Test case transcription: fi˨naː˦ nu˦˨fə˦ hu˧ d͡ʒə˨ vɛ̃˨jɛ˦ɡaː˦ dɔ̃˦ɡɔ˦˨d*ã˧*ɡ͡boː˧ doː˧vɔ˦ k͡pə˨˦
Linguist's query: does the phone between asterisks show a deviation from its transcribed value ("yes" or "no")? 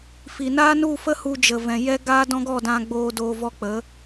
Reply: no